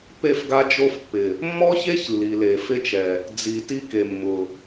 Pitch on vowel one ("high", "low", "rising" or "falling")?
falling